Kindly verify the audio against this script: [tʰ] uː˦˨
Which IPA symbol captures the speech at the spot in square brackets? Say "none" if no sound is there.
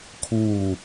kʰ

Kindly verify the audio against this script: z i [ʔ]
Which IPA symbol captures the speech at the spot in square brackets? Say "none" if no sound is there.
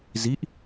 ʔ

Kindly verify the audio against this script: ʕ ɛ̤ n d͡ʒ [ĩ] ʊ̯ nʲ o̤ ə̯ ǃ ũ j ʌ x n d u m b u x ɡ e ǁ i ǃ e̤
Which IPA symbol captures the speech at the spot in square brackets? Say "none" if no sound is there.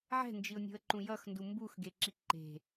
i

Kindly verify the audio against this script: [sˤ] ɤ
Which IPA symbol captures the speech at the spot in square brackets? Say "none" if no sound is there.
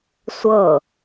sʷ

